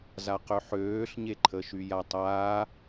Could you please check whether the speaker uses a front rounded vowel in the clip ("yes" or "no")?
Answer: yes